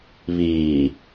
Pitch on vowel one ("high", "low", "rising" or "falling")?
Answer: low